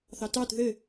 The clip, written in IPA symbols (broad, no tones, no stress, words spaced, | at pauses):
θɑtɑt ðɘ